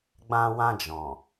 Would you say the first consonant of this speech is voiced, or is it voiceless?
voiced